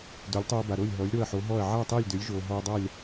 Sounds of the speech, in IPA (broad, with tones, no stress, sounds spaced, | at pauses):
d ø˩˥ lʲ tˤ oː˧ b a˩ ɾ o˥˩ lʲ ɦ ɔ˩˥ lʲ ɾ o˥˩ ɐ̯ ħ o˩˥ ɦ ɔ˥˩ ɐ̯ ʕ a˥˩ tˤ e˥˩ lʲ d ø˩˥ lʲ ʒ oː˩ ɦ ɔ˧ ɐ̯ dˤ a˥˩ lʲ